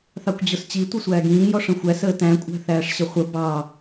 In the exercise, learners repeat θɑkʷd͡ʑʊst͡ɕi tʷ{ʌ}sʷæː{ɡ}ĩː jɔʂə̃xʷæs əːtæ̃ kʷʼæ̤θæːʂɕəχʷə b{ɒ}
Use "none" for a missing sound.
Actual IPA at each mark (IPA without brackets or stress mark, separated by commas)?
ʌ, ɡ, ɑ